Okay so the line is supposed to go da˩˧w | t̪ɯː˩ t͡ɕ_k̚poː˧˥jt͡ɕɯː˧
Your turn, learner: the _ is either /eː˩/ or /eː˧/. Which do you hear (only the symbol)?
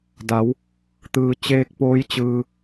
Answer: eː˧